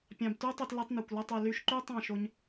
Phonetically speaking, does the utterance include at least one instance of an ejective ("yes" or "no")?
no